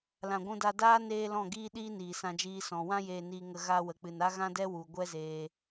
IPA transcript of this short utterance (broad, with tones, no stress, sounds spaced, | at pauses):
l ã˨ ɡʷ ũ˧ d a˧ d aː˦ n eː˦ l ɔ̃˦˨ ɡ iː˦ ɗ iː˦ n iː˨ s ã˧ d͡ʒ iː˧ s ɔ̃˨ w ã˧ j eː˨ n iː˨ ŋ ə˨ ɣ a˧ w ə˨ k͡p ɨ˨ n a˦ ɣ ã˦ d ɛ˦ w u˨ ɡʷ ɛ˦ z eː˧